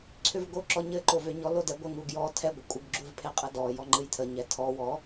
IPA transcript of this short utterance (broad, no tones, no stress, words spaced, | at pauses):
ǀʰʏvɡoǁɔɲɘ ǃovʏɲɔ lodɛɡʷə ŋuɡjɔ tʰɛ ɡʷəkʷʼəɡ ɡ͡ǁuvpʰeqʼɘdɔ jɔŋ͡ǃɨjtʰə ɲɛtʰɔ wɔ